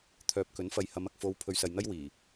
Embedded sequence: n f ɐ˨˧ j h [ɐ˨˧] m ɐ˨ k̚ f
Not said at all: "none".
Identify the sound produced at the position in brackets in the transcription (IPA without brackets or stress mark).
ɐ˨˧